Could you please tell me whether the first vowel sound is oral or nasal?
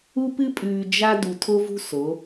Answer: oral